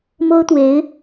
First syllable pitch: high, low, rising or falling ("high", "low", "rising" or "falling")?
high